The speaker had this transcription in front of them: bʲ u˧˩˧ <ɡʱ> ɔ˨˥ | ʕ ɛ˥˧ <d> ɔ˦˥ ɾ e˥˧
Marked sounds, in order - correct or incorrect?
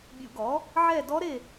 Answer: incorrect: ɡ, correct

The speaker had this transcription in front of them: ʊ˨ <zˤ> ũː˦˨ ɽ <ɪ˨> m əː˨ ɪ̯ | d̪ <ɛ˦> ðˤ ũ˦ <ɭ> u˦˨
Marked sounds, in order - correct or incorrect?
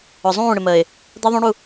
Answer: correct, correct, correct, incorrect: ɽ

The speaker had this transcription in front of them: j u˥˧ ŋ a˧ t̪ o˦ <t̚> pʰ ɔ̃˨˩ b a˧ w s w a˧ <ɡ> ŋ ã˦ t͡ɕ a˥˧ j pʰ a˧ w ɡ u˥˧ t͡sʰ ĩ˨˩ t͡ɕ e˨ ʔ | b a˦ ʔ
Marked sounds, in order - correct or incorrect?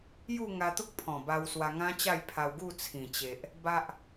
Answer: incorrect: k̚, incorrect: none

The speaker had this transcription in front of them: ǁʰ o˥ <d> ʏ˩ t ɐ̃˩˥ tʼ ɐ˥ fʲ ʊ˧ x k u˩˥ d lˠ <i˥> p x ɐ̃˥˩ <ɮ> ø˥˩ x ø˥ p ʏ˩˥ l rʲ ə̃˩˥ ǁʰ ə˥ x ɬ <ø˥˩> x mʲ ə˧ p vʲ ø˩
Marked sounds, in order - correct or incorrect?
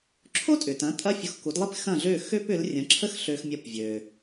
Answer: incorrect: tʼ, correct, correct, incorrect: ø˧

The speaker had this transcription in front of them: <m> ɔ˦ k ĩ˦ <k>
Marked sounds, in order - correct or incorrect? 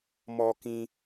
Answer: correct, incorrect: none

